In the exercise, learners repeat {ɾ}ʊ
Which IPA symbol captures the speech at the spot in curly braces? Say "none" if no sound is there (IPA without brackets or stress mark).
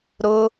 ɾ